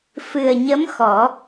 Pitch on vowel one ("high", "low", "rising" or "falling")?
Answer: low